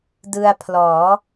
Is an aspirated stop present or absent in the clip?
present